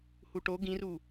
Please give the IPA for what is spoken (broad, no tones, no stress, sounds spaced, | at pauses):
h u ʈ o ɡ ĩ r u